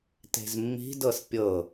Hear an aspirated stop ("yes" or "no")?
no